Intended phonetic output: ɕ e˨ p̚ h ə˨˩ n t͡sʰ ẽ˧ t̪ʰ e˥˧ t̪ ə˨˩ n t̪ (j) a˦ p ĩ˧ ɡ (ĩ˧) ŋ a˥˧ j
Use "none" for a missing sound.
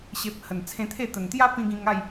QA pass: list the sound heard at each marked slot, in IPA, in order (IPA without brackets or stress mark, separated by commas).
j, ĩ˧